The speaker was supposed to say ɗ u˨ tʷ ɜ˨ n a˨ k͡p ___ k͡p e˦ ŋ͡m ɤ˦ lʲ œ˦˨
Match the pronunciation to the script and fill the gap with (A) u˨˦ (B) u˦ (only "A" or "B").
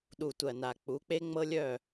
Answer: A